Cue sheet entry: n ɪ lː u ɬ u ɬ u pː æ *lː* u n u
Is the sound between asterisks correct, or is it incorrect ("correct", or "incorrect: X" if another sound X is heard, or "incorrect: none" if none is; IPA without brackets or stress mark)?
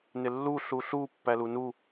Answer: incorrect: l